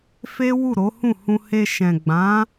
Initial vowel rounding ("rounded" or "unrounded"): unrounded